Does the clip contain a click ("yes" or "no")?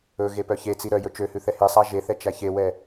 no